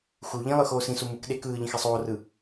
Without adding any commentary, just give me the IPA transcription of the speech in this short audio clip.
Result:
x u ʎ ĩ lˠ ɯ x oː s ĩ s u m ɯ k ɗ e k ɯː ʎ ĩ x e sˤ oː r ɯ

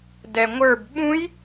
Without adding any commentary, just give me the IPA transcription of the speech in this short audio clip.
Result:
d ɛ ŋʷ ə˞ b ɓ ũ j

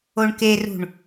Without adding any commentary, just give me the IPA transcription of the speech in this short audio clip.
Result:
o ɳ k e r ṳ ɳ

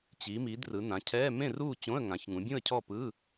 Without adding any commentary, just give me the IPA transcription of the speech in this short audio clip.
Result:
t͡ɕ i˩˧ m i˩˧ d r ɯ˩˧ n ã˩˧ cʰ ɛː˧˥˧ m ẽ˥˨ r uː˥˨ t͡ɕ õ˧˥˧ ə̯ ŋ ã˩˧ ç ŋ ũ˩˧ bʲ ũ˥˨ ə̯ cʰ ɔ˥˨ p ɯ˧˥˧

